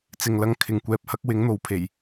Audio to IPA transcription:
t͡s ɪ˨ ŋ l ɐ˧ ŋ kʰ ɪ˨ ŋ kʷ ɛː˧ p̚ h ɐ˥ k̚ w ɪ˨˥ ŋ n̪ o˨˧ w pʰ e˨˩ j

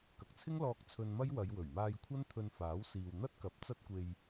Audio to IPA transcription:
k ɐ˨ k̚ t͡sʰ ɪ˥ ŋ l ɔː˧ k̚ t͡sʰ ɵ˧ n m ɐ˥ j w ɐ˨˧ j w ɵ˨˩ ɥ m aː˧ j kʷʰ ɐ˥ n t̪ʰ ɵ˧ n f aː˨˥ w s iː˨ w n̪ ɐ˥ t̚ k ɐ˨˥ p̚ t͡s ɐ˧ t̚ kʷ e˨ j

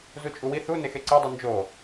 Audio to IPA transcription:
z u t͡ʃʼ u w i θ u n e x e ǀ e dˤ u n d͡ʒ o

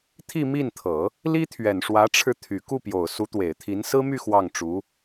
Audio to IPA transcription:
t̪ʰ i˥˧ m i˥˩ n t̪ʰ ɤ˨˩˦ | l i˥ t̪ʰ ɥ ɛ˨˩ n ʂ w ä˧˥ ʈ͡ʂʰ ɻ̩˧ t̪ʰ y˨˩ k u˥˩ p j o˨˩ ʊ̯ s u˧˥ t̪ w e˨˩ ɪ̯ t̪ʰ i˧˥ n s ɹ̩˥ m y˥˧ x w ɑ˥˩ ŋ ʈ͡ʂ u˧˥

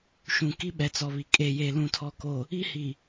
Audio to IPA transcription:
ʃ ũ˨ k i˦ ɓ ɛ˨ t͡s ɔ˨ β i˨ kʼ e˨ j e˨ l ũ˨ tʰ ɔ˨ k o˨ | i˦ h i˨

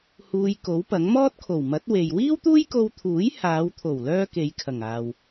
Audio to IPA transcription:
h uː˧ j k o˨˥ w p ɐ˨˥ ŋ m ɔː˥ t̚ kʰ o˨˩ w m ɐ˨˥ t̚ w e˨ j w iː˥ w t̪ uː˥ j k o˧ w t̪ʰ uː˨˥ j h aː˨˧ w t̪ʰ o˨˩ w l œː˥ k e˨˧ j kʰ ɐ˨˩ ŋ aː˨ w

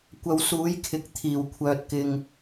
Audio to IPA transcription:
kʷ ɐ˨˧ w s uː˨˥ j kʰ ɪ˨ k̚ t̪ʰ iː˨˩ w kʷʰ œː˨ t̚ k ɪ˨ ŋ

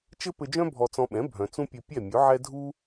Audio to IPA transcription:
t͡ʃ ɘ˥ p ɘ˧ d͡ʒ œ̃˥ bʱ ɔ˧ t͡s ɔ̃˧ ɓ ɛ̃˩˥ bʱ œ̃˩ t͡s ũ˥ pʲ ɘ˧ pʲ ɛ˥˩ mʲ ɵ˩˥ ʕ ɛ˥ dʱ u˥

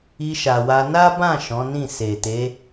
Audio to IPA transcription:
i˧ ʃ a˨ w a˧ n a˦ b ã˦˨ ʃ ɔ̃˨˦ n ĩ˦˨ s e˨ t e˨˦

